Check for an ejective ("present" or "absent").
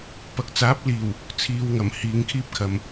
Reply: absent